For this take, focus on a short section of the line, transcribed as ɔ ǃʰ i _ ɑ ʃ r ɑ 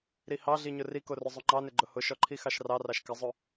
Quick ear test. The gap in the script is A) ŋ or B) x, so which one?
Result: B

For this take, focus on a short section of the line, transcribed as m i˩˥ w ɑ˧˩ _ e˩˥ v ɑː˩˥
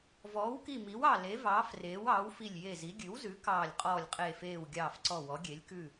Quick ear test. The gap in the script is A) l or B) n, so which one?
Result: A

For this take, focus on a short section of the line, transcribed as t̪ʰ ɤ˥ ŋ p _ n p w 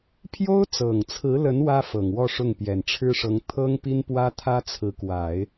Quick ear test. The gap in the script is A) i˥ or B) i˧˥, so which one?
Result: A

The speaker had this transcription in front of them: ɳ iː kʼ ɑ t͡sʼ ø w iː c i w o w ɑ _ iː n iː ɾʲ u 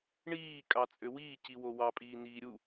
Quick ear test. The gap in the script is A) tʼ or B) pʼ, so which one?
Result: B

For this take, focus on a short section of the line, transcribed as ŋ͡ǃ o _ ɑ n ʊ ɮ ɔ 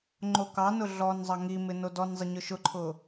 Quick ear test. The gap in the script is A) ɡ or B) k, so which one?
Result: B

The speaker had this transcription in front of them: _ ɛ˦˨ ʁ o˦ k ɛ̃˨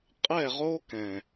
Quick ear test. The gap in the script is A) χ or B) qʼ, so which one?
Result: B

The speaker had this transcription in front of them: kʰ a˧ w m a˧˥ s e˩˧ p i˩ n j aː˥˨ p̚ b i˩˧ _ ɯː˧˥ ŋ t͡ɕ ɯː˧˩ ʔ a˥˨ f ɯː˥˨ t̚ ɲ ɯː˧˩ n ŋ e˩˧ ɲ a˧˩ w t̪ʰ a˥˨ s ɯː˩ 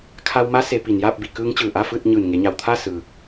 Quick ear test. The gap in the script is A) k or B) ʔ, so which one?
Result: A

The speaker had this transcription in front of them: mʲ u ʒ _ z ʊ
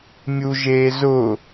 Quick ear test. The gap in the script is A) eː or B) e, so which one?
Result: A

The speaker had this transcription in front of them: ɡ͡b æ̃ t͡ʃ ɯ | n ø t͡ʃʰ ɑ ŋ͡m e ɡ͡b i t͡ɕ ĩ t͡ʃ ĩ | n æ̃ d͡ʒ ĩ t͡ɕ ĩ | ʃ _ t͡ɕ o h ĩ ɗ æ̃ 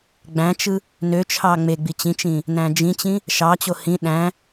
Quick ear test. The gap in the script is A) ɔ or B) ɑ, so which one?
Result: B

